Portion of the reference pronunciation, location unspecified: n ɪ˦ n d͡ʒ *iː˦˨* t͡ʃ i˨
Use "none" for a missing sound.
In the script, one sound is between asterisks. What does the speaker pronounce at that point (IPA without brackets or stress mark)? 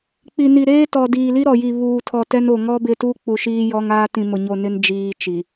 iː˦